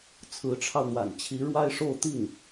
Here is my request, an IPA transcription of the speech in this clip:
t͡sʰ ɹ̩˧˥ ʈ͡ʂʰ ɑ˧ ʊ̯ n̪ w a̰˨˩ n t͡ɕʰ i˧˥ ɻ w a˥ ɪ̯ ʂ o˥˧ ʊ̯ t̪ i˥˩ ŋ

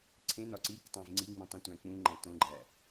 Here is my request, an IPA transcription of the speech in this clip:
ǀʰ ẽ n ɒ ǀ i k tˤ æ̃ v ŋ͡ǀ i ŋ͡m ĩ tˤ ĩ tʷ æ̃ k͡p ũ ŋ͡ǃ æ̃ t õ ɡ͡ǃ æ

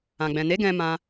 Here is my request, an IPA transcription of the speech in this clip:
ã˨ ɡ͡b ɛ̃˨ n e˨˦ ɡ ɛ̃˧ m ã˦

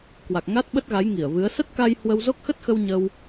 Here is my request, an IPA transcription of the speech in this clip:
k w a˨˩ k̚ ŋ a˦˥ t̚ ɓ ə˦˥ t̚ ɣ a˨˦ j ŋ i˧˩ ə̯ v ɨ˨˦ ə̯ s ə˦˥ t̚ k a˧ j h w ə˧ w z o˦˥ k̚ x ə˦˥ t̚ x ə˧ w ɲ ə˧ w

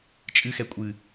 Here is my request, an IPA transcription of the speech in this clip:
t͡ʃʼ ɨ x ɛ kʷʼ ɨ

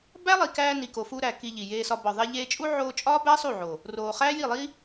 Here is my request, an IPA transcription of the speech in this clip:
b æ˦ lˠ i˨ k æː˧ n i˨ k o˨ f u˧ ɾ æ˨ k i˧ ʎ i˨ j eː˧ s ɒ˧ b ɒ˨ ðˤ e˧ ʎ eː˧ t͡ʃʼ u˦ ʕ oː˧ t͡ʃʼ ɒː˦ b æ˦ sˤ u˦˨ ʕ o˨ | r oː˨ χ æː˦ j i˦˨ lˠ i˦

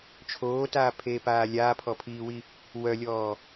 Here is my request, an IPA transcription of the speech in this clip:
t͡ʃʰ oː t aː pʰ eː p aː lʲ aː pʰ ɔ pʰ iː w i | w œ lʲ ɔː

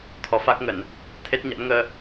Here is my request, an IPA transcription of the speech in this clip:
t̪ʰ ɔ˨˦ f a˦˥ k̚ ŋ ə˧˩˨ n | t̪ʰ e˦˥ t̚ ɲ a̰˧˥ n ŋ əː˧

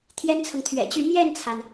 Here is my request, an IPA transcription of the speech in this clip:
t̪ʰ j ɛ˥ n t͡sʰ ɤ˨ ŋ t̪ʰ ɥ ɛ̰˨˩ t͡ɕ y˥˧ m j ɛ˥˩ n t͡sʰ a˩ n

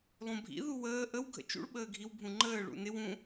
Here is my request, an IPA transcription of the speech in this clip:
lˠ ũ bʱ ḭ ð u w əː ʔ ə w ɡʱ ə̰ t͡ʃ ṵ ɭ ɓ əː ɡʱ i w bʱ ũ ŋ͡ǃ əː ɭ ṵ n ɪ w ũ

